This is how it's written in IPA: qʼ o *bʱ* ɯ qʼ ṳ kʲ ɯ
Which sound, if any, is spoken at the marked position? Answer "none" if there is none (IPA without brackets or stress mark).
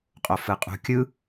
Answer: f